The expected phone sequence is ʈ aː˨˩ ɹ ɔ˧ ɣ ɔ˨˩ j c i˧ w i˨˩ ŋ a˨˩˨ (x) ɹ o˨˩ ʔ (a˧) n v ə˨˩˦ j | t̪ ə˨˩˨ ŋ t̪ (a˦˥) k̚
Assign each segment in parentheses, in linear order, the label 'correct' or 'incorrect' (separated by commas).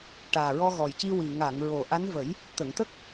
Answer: incorrect, incorrect, incorrect